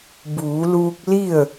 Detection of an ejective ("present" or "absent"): absent